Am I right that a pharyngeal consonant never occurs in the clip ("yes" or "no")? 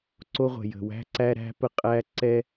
yes